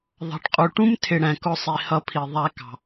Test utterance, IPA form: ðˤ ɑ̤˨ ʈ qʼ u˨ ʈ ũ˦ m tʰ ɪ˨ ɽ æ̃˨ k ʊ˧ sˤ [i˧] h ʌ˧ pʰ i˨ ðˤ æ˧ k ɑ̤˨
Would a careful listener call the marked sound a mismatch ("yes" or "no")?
yes